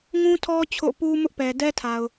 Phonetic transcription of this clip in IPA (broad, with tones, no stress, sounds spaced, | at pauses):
ŋ ũ˦ tʰ ɔ˦ t͡ɕʰ o̰˦˨ p u˦ m ʊ˦ ʔ p ɛ˨ d ɛ˦ tʰ a˨ ʊ̯